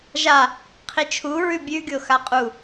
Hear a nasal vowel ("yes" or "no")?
no